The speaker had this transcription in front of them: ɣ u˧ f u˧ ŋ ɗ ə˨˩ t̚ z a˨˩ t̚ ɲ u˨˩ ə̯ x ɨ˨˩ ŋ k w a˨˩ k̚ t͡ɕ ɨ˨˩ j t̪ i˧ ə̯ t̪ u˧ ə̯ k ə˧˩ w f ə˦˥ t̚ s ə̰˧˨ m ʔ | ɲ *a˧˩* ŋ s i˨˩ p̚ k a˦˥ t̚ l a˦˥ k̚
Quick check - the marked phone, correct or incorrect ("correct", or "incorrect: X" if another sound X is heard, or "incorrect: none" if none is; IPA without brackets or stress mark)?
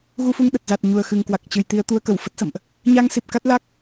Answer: incorrect: a˧